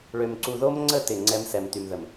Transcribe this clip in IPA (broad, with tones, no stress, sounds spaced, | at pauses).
ɭ ø˨ m ǀ u˨ ð o˦ m ŋ͡ǀ ə˦˨ t ɪ˦˨ ŋ͡ǀ ɛ˦ m s ɛ˨ m t y˨ m ð ə˨ m